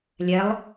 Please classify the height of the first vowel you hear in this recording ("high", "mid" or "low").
mid